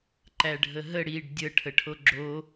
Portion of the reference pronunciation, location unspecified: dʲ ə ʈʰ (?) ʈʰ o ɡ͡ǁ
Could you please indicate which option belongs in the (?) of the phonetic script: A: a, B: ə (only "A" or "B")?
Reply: B